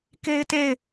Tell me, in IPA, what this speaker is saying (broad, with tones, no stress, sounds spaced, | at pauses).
k e˦ ɪ̯ t e˦˨ ɪ̯